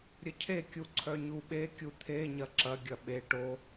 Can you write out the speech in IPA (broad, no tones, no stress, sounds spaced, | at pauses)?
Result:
ɾʲ ə cʰ e kʲ u ǀʰ œ ɲ u ɓ e kʲ u t̪ʰ e ɲ ɐ ǁ ɐ ɡʲ ɐ ɓ e ʈ o